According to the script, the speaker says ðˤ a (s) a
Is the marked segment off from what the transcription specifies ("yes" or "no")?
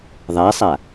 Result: yes